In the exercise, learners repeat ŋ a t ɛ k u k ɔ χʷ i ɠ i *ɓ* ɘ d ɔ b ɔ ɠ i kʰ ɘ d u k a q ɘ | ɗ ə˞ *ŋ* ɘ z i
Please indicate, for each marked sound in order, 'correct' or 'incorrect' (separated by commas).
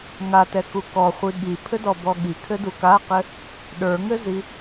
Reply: incorrect, correct